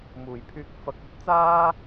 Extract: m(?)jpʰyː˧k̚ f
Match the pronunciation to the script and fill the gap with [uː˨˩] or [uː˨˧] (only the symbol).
uː˨˩